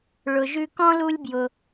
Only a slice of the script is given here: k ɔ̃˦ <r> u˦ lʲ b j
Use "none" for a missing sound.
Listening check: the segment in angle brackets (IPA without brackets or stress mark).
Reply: l